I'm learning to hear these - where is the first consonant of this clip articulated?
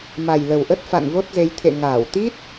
lips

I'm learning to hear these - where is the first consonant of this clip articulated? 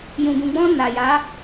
palate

